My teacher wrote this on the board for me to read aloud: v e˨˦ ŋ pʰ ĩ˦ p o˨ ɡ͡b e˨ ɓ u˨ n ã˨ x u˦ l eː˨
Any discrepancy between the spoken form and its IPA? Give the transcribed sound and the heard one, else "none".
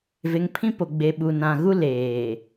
x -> ɣ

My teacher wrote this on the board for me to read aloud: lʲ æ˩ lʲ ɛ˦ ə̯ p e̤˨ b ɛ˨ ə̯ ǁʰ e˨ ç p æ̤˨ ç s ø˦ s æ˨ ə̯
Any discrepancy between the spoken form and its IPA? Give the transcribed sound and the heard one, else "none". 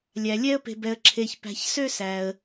none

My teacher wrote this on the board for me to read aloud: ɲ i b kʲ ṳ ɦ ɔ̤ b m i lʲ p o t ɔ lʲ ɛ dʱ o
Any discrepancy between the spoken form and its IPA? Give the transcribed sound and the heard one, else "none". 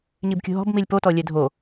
none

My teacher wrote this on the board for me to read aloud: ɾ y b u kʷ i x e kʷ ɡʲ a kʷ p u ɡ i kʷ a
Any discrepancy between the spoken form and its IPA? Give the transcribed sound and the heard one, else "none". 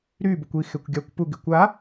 none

